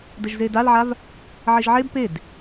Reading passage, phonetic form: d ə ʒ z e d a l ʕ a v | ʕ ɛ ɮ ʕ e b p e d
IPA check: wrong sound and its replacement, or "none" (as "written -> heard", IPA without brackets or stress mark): ɮ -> ʒ